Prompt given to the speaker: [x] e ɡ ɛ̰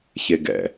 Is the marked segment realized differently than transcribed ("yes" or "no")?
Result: yes